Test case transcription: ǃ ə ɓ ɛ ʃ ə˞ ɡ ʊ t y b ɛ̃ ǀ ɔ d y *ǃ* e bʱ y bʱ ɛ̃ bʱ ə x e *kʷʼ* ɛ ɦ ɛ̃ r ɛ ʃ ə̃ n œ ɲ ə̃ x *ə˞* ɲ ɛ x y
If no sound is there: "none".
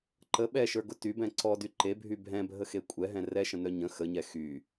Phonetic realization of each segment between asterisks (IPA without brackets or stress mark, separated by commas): ǃ, kʷʼ, ə